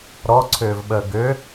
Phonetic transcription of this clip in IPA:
ɾ ɔ ǀʰ ʏː v ɓ əː ɡ ʏ

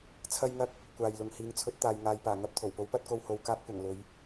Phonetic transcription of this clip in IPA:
t͡sʰ ɐ˥ j ŋ ɐ˥ k̚ | kʷ aː˧ j l ʊ˧ ŋ h iː˨˧ ŋ t͡sʰ ɵ˨˥ t̚ t̪ aː˨ j ŋ aː˨ j p aː˨˩ ŋ ɐ˧ p̚ t̪ʰ o˨˩ w p o˨˥ w p ɐ˨˥ t̚ k o˧ w h o˧ w k aː˧ p̚ kʷ ɐ˨˩ ŋ l ɵ˨˧ ɥ

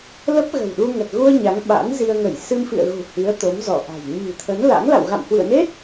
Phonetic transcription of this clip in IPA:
l ə˦˥ p̚ ɣ ə̤˨˩ w ɗ u˧ ŋ ə˨˩ t̚ ɣ u˧ ə̯ ɲ a˨˦ ŋ ɓ a̰˧˥ n z i˧ ə̯ ŋ ə˧˩ j s ɨ˧ m f ḭ˧˨ ə̯ ɣ ṳ˨˩ h i˨˦ ə̯ t̪ o˨˦ m z ɔ˧˩ ʔ a̤˨˩ j ɲ i̤˨˩ t̪ʰ ə˨˦ n l a̰˧˥ ŋ l a̰˧˨ w ɣ a̰˧˨ m h w ḭ˧˨ ə̯ n e˦˥ t̚

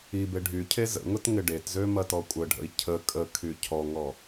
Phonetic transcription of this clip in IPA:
i b e ɖʱ y cʰ e z ə̰ ŋ ʊ t ŋ ɪ ɖ e t z ø m ɐ t ɔ kʷʼ ə ɖʱ ə̰ i̯ cʰ ə kʼ ə kʰ y cʰ ɔ ŋ ɔ

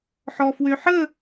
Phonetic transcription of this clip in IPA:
ħ ɔ f w ø ħ ə

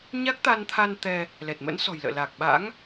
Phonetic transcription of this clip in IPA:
ɲ a˦˥ k̚ t̪ a˧ n t̪ʰ a˧ n t̪ ɛ˧ | l ɛ˨˩ t̚ m ə̰˧˥ n s ɔ̤˨˩ j l ə̰ː˧˨ l a˨˩ k̚ ɓ a̰˧˥ ŋ

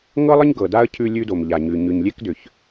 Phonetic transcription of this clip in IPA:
ŋ ɤ˦ lˠ ə˦ ɲ ɡ ɤ˨ d a˦ ə̯ cʰ ʉ˦ lʲ ʉ˦ d o˨ m ʎ a˨ ɲ ʉ˨ ɲ ʉ˨ ɲ lʲ e˦ k d ʏ˨ ç

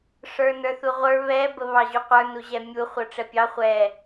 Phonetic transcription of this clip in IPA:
ʂ ə˞ n ə˞ θ u ʁʷ ə˞ β ɛ b ə β ɑ ʑ u qʷ ə˞ n u ʑ ɛ mʲ u χʷ ə˞ ʈ͡ʂ ɛ pʲ ɑ χʷ ɛ

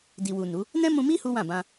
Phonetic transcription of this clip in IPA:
d i˨ w u˨ n u˨˦ | n ɛ̃˦ m ũ˧ m i˦ h u˦ w ã˦˨ b ã˧

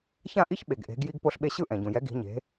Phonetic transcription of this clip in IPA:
ç ã˥˩ ʔ i˥ ç ɓ e˩ ɡ ʔ e̤˩˥ ɡ j i˧ ɡ p o˧ ɬ ɓ e˧ ɕ ɯ˥˩ ʔ ɛ̃˩ ɟ ũ˩ j ɛ˩˥ ɡ i̤˩˥ ɲ e̤˩˥

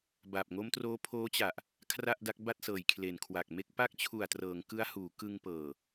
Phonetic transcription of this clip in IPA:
b a˨˩ p̚ ŋ o˦˥ m t r oː˦˥ pʰ oː˦˥ t͡ɕ a˨˩ ʔ | kʰ r a˥˩ ʔ d a˦˥ k̚ b a˥˩ t̚ s ɤː˨˩ j kʰ l e˨˩ n kʰ w a˨˩ k̚ m e˦˥ k̚ p a˦˥ k̚ t͡ɕʰ u˨˩ a̯ t r ɤː˩˦ ŋ k ɯ˦˥ a̯ h uː˩˦ k ɯ˧ ŋ p ɤː˨˩

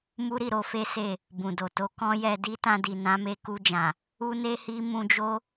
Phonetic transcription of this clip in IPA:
m u˦ ɾ i˦˨ ɾ o˧ f e˦ s e˦˨ | b ũ˨ d o˨ t o˨˦ k ɔ̃˦ j ɛ˧ d i˦ t ã˧ d i˨ n ã˨˦ m e˧ k u˧ d͡ʒ ã˨ | u˦ n e˦ h i˦ m ũ˧ d͡ʒ o˦

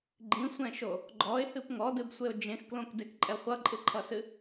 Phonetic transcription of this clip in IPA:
ɡ͡ǃ ĩ sʷ ɛ̃ ʃ o | ɡ͡ǃ ɔ ɪ̯ h ɨ p ŋ ɔ d ɨ b sʷ e ʊ̯ d͡ʒ ẽ x k l õ k d e k ǃʼ ɛ χʷ ʌ ǃʼ ɨ ǃʰ ʌ s ɨ

